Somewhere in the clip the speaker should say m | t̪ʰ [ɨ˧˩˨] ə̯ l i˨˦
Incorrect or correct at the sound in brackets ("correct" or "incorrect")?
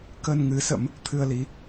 incorrect